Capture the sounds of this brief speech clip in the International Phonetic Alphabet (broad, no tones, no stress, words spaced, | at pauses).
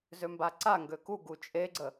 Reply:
zømbaǀaŋɡø kuɡu t͡ʃʼeɡ͡ǀə